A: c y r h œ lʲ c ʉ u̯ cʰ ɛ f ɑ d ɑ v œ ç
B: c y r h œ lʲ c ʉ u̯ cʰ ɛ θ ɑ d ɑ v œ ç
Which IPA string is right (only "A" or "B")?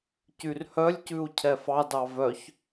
A